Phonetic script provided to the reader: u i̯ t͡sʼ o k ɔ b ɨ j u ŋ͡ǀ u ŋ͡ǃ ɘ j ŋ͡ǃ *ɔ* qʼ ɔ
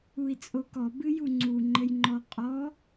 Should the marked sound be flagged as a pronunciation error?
no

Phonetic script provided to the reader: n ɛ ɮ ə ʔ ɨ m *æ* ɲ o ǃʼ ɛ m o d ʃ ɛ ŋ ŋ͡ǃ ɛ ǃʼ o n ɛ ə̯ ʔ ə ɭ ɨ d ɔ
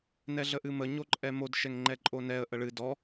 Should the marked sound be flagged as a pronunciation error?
yes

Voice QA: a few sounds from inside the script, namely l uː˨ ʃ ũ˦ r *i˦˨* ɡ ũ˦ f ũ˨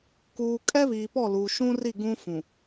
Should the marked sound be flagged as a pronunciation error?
no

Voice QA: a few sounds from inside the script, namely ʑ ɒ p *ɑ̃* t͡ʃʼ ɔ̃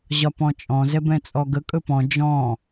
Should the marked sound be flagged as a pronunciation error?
yes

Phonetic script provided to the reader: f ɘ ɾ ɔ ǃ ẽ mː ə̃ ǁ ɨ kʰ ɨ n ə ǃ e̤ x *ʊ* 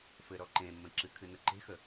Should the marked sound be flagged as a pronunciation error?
yes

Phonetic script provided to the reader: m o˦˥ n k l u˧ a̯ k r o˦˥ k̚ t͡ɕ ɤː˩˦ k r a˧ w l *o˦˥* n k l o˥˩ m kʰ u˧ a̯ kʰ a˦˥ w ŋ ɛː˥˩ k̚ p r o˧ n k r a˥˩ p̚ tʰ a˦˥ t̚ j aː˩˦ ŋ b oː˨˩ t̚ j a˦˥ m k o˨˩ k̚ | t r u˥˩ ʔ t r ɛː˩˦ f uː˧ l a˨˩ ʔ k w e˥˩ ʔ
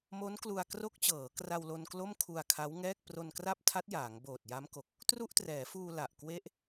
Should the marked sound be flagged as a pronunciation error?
yes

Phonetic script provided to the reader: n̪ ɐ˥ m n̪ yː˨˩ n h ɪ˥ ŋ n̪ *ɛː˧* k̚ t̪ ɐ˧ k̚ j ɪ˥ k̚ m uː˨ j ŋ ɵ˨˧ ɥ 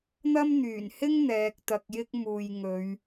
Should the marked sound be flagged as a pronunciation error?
no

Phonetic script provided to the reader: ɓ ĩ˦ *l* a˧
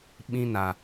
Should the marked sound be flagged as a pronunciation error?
yes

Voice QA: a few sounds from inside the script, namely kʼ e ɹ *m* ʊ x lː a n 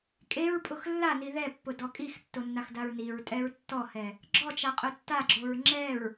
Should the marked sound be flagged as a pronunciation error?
yes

